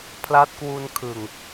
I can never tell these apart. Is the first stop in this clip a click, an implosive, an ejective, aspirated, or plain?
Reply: aspirated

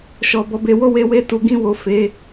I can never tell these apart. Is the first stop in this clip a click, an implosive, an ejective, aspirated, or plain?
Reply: plain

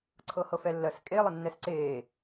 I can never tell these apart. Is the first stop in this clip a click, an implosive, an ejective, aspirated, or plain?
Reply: click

